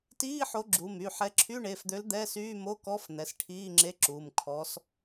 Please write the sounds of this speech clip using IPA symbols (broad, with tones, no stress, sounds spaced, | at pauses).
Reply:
t iː˧˥˧ ħ o˨˦ ɡ͡ǁ u˩˧˩ m y˩˧˩ ħ ɛ˨˦ ǁʰ y˧˥˧ ɳ e˩˧˩ f d̪ ø˨˦ l d̪ ɛ˧˥˧ s yː˧˥˧ m o˧˥˧ k ɔ˧˥˧ f n̪ ɛ˩˧˩ s ʈʰ iː˧˥˧ ŋ͡ǁ e˧˥˧ ǁ uː˩˧˩ m kʰ ɔ˨˦ s